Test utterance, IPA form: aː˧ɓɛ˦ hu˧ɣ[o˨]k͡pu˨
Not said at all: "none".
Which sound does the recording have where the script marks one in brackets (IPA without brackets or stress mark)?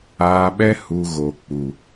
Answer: o˨